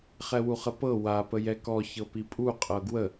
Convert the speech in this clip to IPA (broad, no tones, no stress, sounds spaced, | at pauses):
χ ɛ w u χ ə p ɤ w a p ə j ɛ k ɔ ç ɤ p i pʼ u qʼ ɤ ɡ w ə